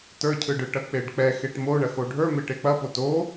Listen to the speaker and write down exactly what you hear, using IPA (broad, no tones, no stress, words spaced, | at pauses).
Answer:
tə˞cʰɯɖɯʈɐ k͡peɖk͡pɛ xeʈmo ɳɐxoɖʱə˞ meʈek͡pɐpo to